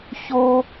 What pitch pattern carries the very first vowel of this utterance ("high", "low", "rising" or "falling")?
high